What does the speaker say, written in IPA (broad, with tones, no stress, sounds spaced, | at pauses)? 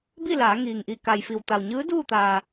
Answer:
b i˥˨ l aː˩˧ ŋ iː˩ ŋ ʔ i˧˩ k a˩ j f i˩ w t̪ a˩ w ɲ ɯː˧˥ d uː˥˨ t̪ aː˩